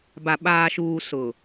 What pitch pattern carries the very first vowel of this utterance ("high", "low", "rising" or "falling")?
low